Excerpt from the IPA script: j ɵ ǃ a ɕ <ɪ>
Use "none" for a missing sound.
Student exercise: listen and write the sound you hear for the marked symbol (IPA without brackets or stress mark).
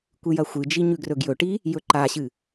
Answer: ɨ